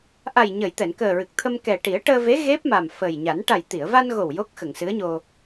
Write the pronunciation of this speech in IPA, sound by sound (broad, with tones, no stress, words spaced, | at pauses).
ʔa˨˩jɲə˨˩˨j t̪ɛ˨˩˨nkəː˨˩ɹɨ˨˩k̚t̪ʰə˧m kɛ˨˩ʈi˨˩˦ə̯ʈəː˧ve˧˥ ɣe˦˥p̚ma˨˩m fə˨˩jɲa˨˩˦n ʈa˨˩jt̪i˨˩˨ə̯va˧nɣo˨˩w jo˦˥k̚xə˨˩˨ŋsɨ˧˥ə̯ɲo˧